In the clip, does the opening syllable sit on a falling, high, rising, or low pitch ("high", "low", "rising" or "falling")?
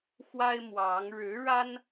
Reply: high